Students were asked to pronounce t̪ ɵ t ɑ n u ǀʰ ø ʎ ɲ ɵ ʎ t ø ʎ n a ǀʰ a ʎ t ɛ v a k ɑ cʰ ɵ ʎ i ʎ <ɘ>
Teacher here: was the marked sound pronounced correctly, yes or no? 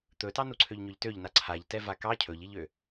no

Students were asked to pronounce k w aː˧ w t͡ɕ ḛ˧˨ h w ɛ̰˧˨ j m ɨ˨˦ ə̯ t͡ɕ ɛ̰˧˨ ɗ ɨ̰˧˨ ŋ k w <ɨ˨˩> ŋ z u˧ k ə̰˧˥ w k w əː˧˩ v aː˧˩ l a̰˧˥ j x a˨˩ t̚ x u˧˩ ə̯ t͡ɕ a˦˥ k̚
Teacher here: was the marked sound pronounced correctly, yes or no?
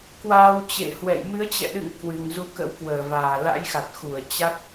yes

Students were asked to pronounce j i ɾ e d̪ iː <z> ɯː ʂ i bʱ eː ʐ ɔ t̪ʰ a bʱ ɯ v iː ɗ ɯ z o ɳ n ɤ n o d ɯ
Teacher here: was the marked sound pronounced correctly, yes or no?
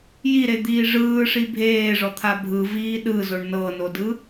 no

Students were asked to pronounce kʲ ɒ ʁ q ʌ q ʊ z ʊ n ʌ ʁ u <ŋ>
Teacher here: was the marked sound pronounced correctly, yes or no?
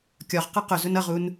no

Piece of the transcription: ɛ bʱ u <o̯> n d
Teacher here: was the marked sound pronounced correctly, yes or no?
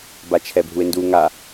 no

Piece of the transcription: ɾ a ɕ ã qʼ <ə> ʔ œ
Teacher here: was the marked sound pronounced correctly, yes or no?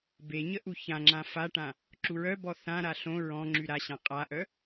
no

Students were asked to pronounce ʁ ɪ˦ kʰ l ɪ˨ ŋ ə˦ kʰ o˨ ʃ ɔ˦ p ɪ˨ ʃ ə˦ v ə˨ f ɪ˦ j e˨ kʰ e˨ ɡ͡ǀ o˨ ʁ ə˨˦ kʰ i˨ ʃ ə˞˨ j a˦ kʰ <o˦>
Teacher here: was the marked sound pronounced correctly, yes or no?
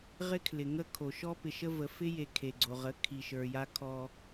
no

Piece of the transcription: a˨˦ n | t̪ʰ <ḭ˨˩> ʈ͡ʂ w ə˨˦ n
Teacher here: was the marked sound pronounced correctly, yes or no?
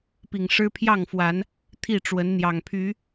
no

